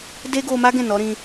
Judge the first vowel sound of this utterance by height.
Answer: mid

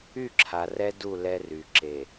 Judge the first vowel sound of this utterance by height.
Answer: high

